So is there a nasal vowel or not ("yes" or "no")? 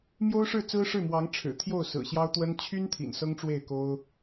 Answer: no